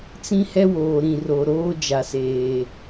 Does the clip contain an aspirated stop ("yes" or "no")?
no